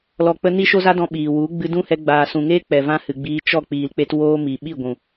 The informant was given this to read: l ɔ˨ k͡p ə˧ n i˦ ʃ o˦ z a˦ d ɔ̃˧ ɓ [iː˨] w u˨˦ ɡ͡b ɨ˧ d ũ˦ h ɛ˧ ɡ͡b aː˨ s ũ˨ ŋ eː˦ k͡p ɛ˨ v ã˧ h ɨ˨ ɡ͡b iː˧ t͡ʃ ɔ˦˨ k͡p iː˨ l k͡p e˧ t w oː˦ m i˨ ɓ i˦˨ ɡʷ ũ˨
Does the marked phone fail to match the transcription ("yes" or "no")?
no